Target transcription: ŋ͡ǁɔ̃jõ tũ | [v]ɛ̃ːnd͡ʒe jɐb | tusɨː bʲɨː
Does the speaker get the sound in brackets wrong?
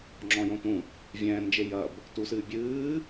yes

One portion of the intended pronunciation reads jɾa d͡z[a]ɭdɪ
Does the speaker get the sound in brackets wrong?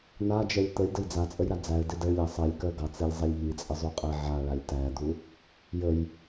yes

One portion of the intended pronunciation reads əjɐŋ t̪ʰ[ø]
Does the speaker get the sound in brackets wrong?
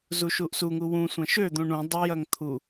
yes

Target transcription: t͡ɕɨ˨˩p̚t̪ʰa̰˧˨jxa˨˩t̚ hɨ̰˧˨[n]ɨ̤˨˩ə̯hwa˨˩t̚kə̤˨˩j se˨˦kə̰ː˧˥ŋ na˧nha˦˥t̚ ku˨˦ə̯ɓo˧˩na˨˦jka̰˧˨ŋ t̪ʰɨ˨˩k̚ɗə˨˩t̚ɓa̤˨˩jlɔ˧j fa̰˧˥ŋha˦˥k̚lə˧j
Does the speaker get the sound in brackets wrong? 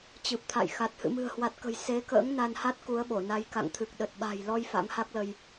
yes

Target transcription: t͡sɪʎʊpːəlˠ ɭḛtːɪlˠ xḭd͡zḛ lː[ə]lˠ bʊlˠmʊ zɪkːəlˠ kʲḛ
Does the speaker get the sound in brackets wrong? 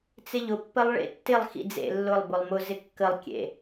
yes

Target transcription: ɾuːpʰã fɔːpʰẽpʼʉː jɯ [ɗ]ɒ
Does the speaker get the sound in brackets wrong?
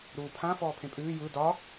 yes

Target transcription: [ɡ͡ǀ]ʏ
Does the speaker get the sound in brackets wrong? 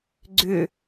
no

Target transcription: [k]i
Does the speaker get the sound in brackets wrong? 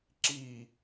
yes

